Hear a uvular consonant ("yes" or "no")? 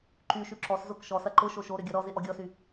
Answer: no